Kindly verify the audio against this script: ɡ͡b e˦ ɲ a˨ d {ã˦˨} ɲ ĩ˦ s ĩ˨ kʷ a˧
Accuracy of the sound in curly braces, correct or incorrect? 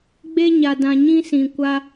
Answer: incorrect